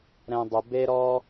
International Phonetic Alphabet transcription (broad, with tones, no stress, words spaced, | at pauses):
ɾɛ̃˦dˤɵ˧ be˦ɾɔ˦